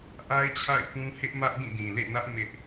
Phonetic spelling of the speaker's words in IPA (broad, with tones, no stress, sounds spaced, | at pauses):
ʔ a˦ ɪ̯ t͡ɕʰ a̰˦˨ ɪ̯ p ũ˦ h ɪ˦ ʔ m ä˦ ʔ d ĩ˦˨ d ĩ˨ l ḛ˦˨ n ä˦ ʔ m ɪ˦ ʔ